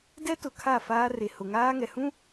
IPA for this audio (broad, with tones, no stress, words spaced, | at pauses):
dɛ˦tʊ˨ kʰa˦˨faː˦re˨ hʊ˨ŋaː˦ŋɛ˨hũ˦